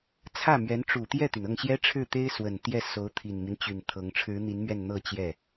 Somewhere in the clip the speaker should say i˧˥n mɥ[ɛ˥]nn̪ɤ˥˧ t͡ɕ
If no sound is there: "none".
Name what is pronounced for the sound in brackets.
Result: ɛ˥˧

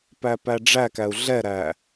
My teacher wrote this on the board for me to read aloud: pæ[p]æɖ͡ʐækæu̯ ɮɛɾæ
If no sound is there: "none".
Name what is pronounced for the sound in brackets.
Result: p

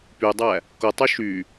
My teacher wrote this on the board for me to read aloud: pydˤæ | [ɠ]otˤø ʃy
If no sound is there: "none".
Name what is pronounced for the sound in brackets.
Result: k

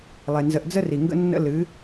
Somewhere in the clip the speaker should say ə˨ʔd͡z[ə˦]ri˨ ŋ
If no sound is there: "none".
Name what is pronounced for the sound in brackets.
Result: ə˦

